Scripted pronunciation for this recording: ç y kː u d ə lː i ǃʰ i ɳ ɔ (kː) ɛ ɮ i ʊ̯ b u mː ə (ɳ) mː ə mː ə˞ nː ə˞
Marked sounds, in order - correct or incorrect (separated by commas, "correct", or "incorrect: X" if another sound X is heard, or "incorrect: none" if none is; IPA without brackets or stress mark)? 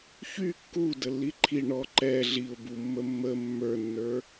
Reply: incorrect: ǃ, incorrect: none